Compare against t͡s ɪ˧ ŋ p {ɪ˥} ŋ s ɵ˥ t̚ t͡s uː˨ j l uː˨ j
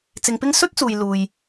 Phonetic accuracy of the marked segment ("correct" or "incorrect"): correct